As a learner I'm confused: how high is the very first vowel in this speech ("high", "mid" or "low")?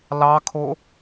low